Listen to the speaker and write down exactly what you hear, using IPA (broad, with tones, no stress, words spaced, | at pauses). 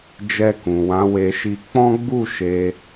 d͡ʒɛ˧kũ˨wã˨˦ we˧ʃi˧ k͡pɔ̃˦ɡ͡bu˦˨ ʃe˧